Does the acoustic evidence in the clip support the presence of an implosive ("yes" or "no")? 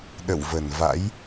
yes